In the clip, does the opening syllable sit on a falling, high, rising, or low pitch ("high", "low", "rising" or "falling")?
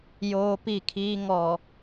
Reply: high